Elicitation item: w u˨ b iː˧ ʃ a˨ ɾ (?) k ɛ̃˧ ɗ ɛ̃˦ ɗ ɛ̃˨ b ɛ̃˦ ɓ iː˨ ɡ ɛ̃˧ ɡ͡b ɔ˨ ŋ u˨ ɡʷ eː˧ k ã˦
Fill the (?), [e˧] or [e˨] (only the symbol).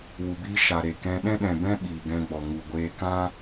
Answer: e˨